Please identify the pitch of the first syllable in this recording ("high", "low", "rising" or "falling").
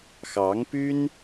rising